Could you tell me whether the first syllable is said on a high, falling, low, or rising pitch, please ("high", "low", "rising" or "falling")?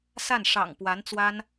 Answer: falling